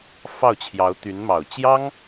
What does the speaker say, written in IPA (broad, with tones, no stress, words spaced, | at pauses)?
fɑ˥˩ʊ̯t͡ɕʰjɑ˧˥ʊ̯t̪y˧˥nmɑ˨˩ʊ̯ t͡ɕjɑ˥ŋ